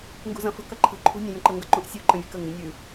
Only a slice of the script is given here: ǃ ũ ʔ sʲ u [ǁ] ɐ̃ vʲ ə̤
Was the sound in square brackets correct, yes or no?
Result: no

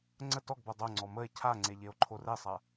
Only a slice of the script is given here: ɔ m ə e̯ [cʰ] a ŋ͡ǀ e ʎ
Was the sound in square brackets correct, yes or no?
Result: yes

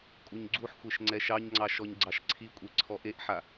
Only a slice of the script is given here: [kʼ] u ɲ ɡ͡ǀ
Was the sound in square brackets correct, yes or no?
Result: yes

